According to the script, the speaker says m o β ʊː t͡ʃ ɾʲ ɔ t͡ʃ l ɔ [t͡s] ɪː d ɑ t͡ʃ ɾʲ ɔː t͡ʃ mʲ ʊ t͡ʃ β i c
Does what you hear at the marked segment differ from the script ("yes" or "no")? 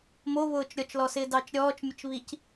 yes